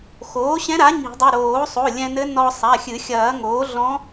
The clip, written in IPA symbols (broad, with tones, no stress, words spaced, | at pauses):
xoː˩˥ɕɛ̃˧˥ɾa˩˥ ɲi̤˨˩˦dˤu˩˧˩ ɾoː˨˩˦sˤo˩˧˩ lʲɛ̃˧nɘ˧˥ nɔ˧sˤa˩˧˩xʲɨ˨˩˦ xʲɐː˨˩˦ŋoː˩˥ɮɔ̃˧˥